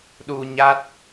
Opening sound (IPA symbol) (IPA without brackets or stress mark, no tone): ɗ